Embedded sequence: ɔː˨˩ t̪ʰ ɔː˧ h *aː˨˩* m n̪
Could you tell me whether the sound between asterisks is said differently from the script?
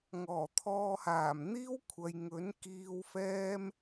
no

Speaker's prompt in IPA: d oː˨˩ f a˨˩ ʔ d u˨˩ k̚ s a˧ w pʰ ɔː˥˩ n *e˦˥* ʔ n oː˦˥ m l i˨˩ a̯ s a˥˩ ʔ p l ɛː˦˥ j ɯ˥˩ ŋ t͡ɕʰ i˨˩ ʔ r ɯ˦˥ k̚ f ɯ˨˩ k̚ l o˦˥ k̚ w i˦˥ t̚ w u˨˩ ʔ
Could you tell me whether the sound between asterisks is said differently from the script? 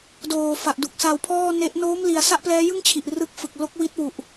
no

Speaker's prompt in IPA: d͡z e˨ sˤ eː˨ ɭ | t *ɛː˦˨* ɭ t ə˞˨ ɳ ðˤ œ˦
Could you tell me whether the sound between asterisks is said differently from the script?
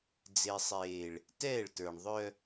no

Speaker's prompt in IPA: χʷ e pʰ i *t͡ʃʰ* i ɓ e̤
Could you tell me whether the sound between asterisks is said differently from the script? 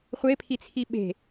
yes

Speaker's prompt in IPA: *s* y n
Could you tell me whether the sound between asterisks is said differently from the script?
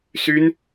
no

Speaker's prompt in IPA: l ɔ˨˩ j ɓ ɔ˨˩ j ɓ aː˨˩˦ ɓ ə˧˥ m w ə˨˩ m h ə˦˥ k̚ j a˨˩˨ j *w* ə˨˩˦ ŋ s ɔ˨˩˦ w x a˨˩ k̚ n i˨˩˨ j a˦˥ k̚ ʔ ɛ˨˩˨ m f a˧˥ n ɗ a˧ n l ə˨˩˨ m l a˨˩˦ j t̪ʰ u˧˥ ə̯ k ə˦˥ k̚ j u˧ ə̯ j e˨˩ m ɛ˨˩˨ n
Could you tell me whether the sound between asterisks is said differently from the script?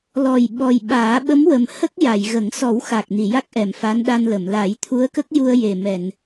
yes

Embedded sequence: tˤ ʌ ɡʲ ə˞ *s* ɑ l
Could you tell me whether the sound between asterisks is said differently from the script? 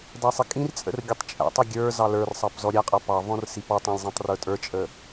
yes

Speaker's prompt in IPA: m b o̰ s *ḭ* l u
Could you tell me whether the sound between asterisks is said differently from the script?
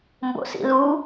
no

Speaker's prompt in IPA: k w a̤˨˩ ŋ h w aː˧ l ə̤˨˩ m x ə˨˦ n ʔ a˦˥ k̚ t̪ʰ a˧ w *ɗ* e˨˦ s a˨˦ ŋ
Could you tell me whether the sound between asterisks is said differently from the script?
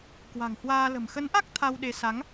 no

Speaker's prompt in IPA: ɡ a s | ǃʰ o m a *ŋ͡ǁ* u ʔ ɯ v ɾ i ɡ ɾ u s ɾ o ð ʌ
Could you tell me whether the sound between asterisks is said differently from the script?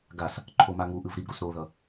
yes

